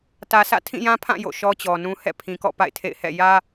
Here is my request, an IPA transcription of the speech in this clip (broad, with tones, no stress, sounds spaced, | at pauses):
t ä˨ sʰ ä̰˦˨ tʰ ĩ˦˨ j ã˦ pʰ ã˦˨ j o̰˦˨ ʃ ɔ˦ t͡ɕ ɔ˨ n ũ˦ h ɛ̰˦˨ pʰ ĩ˨ k ɔ̰˦˨ p a̰˦˨ ɪ̯ tʰ ḛ˦˨ ɪ̯ h ɛ̰˦˨ j ä˦